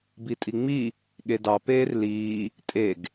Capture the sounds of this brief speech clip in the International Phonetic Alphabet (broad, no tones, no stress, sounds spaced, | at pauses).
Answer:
b i tʼ i ŋ͡m i | ɠ e d ɑ p eː r l iː | tʼ e ɡ